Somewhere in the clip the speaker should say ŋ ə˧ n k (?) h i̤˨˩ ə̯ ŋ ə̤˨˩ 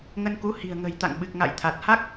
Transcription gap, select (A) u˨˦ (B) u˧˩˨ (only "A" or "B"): A